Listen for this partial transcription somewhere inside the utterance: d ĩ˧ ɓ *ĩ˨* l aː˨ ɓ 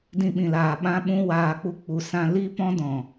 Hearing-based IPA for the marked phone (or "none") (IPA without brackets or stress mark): ĩ˨